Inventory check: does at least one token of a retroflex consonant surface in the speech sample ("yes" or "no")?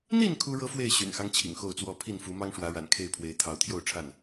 yes